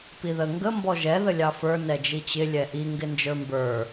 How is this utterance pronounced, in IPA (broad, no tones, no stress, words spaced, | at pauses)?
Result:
piðə ŋɡə mbɔʒɛ ðəlʲɑfə˞ nɛd͡ʒit͡ɕɪ lʲɛʔi ŋɡɪnd͡ʒə˞mbə˞